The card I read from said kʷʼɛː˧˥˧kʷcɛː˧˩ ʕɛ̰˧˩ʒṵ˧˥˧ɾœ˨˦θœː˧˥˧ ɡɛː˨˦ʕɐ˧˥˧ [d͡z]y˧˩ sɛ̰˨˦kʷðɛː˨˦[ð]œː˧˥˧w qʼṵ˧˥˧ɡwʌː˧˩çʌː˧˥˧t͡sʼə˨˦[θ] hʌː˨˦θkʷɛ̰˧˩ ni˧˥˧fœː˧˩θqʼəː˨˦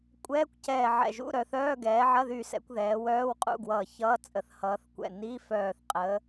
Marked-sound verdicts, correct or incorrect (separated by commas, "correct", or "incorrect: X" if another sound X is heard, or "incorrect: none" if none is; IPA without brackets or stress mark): incorrect: ð, incorrect: w, correct